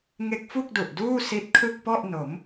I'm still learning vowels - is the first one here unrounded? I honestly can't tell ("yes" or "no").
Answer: yes